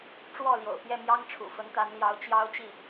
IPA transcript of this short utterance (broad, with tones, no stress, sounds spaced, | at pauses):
ʈ͡ʂ w ɔ˥˩ l j o̰˨˩ ʊ̯ p j ɛ˥˩ m j ɑ˥ ŋ ʈ͡ʂʰ ṵ˨˩ f ə˧˥ n t̪ a˧˥ n l j ɑ˧˥ ʊ̯ t͡ɕ j ɑ˥ ʊ̯ t͡ɕ i˥˩